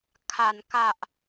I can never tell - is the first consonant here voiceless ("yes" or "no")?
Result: yes